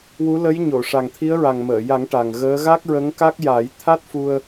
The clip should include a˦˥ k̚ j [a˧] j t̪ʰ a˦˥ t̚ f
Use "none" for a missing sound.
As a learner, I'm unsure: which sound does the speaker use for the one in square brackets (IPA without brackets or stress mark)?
a˨˩˦